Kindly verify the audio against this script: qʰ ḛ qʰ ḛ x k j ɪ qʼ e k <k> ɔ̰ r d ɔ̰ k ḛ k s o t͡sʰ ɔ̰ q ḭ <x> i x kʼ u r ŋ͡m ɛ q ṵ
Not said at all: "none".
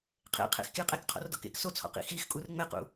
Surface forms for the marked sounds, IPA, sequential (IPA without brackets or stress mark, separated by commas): qʰ, x